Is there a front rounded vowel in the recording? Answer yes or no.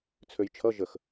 yes